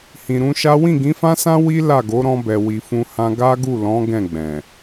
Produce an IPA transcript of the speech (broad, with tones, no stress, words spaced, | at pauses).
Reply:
hĩ˨ɾũ˧ʃa˦ wĩ˦˨ɡĩ˨˦fã˦sã˦ wi˦ la˦˨ɡo˨˦ɾɔ̃˧bɛ˨ wi˨fũ˧hã˧ ɡa˦ɡu˦˨ lɔ̃˨˦ ɡɛ̃˦˨ ɡ͡bɛ̃˨